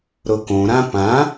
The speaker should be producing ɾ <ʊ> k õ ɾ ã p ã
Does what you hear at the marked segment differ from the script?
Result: no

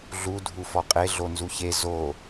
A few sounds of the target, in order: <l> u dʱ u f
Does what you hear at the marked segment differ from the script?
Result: yes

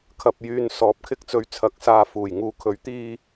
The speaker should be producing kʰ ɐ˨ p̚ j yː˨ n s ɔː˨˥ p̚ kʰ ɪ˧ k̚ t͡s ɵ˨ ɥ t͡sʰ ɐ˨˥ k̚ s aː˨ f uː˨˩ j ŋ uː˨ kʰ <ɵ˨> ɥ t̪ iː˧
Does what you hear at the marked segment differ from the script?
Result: yes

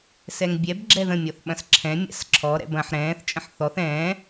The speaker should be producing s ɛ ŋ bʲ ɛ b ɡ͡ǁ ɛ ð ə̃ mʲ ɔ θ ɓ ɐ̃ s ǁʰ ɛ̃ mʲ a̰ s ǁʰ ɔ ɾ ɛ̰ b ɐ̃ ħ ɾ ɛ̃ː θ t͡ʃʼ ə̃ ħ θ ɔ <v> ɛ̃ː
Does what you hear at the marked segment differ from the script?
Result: yes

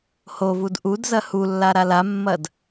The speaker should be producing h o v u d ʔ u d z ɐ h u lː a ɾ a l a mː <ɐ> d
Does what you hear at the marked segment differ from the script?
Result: no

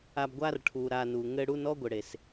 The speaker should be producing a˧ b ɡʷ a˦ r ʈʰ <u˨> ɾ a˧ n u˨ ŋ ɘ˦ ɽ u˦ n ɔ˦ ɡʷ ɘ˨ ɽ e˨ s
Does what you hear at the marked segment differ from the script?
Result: no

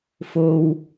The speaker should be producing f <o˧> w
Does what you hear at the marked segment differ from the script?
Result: no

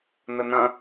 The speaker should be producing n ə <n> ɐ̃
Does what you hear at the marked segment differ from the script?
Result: no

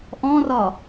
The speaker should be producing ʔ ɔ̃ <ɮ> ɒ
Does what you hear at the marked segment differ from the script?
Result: yes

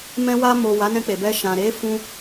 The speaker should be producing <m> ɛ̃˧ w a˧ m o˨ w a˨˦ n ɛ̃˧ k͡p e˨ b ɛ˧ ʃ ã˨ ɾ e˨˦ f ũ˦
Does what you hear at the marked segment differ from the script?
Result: no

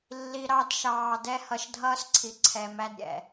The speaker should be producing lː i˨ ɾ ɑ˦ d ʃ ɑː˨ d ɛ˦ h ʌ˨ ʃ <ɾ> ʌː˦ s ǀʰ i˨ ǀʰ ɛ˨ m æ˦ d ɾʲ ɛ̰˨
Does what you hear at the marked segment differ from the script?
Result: yes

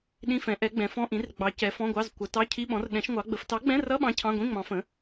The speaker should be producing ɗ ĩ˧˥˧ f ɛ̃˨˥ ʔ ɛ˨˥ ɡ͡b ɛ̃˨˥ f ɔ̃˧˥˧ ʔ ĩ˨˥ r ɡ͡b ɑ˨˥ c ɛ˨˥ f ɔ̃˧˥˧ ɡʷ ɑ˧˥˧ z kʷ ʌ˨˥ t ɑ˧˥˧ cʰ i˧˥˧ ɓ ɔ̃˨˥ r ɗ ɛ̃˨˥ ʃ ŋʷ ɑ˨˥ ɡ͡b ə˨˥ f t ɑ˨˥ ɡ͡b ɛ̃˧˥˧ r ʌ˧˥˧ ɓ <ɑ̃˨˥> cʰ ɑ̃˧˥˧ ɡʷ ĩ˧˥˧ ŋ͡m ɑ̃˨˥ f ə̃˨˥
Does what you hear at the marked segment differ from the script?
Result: no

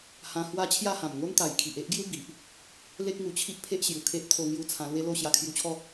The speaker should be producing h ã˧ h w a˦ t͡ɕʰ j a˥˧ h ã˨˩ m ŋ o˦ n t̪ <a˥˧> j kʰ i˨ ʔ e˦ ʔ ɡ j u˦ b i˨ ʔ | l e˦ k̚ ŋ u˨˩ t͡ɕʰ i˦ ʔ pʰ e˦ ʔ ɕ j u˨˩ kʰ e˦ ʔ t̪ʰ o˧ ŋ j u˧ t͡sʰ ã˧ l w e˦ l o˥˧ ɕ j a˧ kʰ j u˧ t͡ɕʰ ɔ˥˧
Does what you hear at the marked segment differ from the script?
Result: yes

